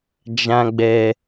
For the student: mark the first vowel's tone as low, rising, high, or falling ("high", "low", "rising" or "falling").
high